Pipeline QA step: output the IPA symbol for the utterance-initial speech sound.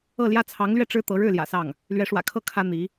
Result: ɤ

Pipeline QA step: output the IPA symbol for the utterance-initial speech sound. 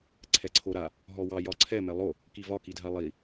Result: ǀʰ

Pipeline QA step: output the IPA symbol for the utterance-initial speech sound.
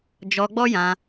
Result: d͡ʒ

